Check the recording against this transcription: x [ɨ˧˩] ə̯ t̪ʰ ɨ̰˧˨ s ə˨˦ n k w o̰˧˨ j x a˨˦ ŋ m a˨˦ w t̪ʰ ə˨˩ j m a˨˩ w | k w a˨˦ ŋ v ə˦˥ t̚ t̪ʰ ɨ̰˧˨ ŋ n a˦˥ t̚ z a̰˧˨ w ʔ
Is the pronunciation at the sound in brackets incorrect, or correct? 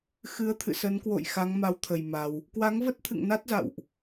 incorrect